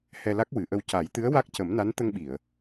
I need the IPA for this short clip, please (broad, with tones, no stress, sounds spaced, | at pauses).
h ɛ˧ l a˦˥ k̚ w ɨ˨˩˦ ʔ ə˧ w c a˨˩˦ j t̪ ɨ˧˥ ə̯ w a˦˥ k̚ c ə˨˩˦ m n a˧˥ n t̪ ə˧ ŋ ɓ i˨˩˨ ə̯